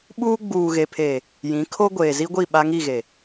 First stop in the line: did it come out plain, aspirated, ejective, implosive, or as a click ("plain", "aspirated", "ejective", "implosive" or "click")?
implosive